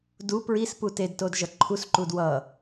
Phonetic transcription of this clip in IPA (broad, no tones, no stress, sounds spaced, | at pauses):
d u p ɹ i s p u t e d t o d ʒ ʌ ǃʰ u s ǃ u d w ʌ